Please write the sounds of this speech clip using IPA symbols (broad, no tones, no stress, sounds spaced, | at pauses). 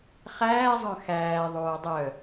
χ æː zˤ œ̃ x æː ðˤ oː dˤ œ